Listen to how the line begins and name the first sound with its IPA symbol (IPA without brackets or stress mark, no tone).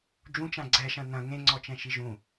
d͡ʒ